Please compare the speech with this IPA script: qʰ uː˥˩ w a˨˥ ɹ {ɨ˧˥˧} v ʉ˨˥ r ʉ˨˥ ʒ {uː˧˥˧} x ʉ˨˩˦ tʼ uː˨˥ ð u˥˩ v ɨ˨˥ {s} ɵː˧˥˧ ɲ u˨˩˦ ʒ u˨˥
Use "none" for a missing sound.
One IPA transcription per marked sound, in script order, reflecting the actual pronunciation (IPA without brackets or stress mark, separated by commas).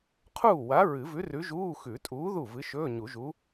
ɨ˨˩˦, uː˧˥˧, ʃ